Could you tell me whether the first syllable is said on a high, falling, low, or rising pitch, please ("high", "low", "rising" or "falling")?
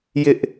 high